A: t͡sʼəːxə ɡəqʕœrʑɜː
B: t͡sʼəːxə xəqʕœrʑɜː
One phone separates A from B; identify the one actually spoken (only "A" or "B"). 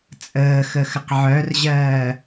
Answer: B